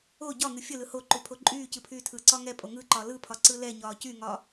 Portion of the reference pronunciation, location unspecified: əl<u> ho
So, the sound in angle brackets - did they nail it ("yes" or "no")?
no